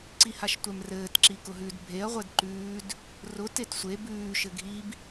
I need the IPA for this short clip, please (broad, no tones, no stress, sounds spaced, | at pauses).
ǀ i h a ʃ tʷ ɛ m r ɘː t ǁ i k ʊ ɦ ʉ d bʱ e ɐ̯ ʁʷ ɛ d ǃ ʉː d | r ʊ t e t sʷ e b ʉː ʃ ɘ ɡʱ i b